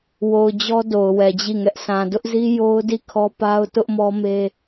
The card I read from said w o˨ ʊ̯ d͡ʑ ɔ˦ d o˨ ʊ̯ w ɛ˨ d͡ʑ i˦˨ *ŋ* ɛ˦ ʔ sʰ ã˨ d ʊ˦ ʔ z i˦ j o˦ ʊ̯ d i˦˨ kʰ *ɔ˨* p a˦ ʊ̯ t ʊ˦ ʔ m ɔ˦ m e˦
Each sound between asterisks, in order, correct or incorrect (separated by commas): correct, incorrect